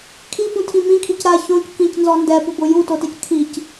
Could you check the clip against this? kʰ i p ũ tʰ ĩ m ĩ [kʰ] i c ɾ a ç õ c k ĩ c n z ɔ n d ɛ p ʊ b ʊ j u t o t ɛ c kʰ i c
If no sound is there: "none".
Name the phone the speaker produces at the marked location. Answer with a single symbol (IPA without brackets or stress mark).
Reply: kʰ